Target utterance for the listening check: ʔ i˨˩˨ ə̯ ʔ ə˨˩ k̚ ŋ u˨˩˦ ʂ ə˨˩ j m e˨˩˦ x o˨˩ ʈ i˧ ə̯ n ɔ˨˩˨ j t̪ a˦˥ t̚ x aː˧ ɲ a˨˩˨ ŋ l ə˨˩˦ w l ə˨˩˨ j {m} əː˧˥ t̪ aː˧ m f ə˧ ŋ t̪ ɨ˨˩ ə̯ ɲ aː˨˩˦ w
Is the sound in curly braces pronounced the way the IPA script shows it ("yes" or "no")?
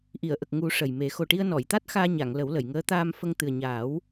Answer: no